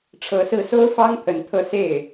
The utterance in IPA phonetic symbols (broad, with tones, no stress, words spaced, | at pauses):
ʈ͡ʂʰɤ˧˥sɹ̩˥˩ so˥ʊ̯fɑ˥ŋ pʰə˧˥nt̪ʰɤ˥˧ se˥˩ɪ̯